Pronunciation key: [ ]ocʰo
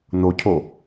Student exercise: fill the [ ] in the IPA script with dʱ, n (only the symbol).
n